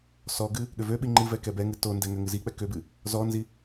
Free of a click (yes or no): no